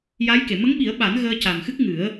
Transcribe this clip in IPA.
ja˧˥jke˨˩˨ mə˧˥ŋɓi˨˩˦ə̯ɓa˨˩˦n ɣəː˧ca˨˩mxɨ˦˥k̚ ŋɨ˨˩˦ə̯

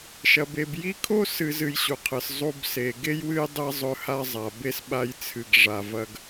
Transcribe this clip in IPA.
ʃɐ˩be˩b ji˦kʰo˥ sɨ˨ zɨ˨jɕu˩qʰɨ˩s zˤu˨bse˩ ɡe˥jwɨ˦j dˤe˥ zˤɵ˦ha˥zˤa˩ be˥sɓa˦jt͡sʰɨ˨ɡ ʐa˨vɐ˦ɡ

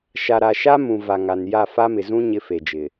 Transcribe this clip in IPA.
ʃa˨ɾa˨ʃa˦mũ˨ va˨ŋa˨nja˦˨ fa˦mɪ˨zũ˦ ɲɪ˦fe˨d͡ʒɪ˨

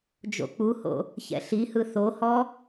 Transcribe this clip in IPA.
d͡ʒo̰k͡puho̰ | çɛ̰ɬihɯ θohɔ

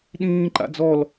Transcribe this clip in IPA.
ɗĩː ǃa̰d͡zɔl

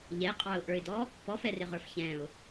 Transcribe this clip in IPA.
ʎɛqʼɑʊ̯ʔə˞ɪ̯dɔ | pɔfɛrɪʁə˞f çɛ̃ʊ̯

